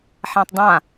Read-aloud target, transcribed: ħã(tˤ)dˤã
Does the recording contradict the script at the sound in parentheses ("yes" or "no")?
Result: no